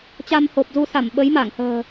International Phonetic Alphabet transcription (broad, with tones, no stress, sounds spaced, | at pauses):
t͡ɕ a˧ m h o˨˩ p̚ z u˧ s a˧˩ m ɓ ə˨˦ j m a˧˩ ŋ h ə̤ː˨˩